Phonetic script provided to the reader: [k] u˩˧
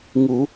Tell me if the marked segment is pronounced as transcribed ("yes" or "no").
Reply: no